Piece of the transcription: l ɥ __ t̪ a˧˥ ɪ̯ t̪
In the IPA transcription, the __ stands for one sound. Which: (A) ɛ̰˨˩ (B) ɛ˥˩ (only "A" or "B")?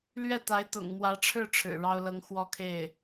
B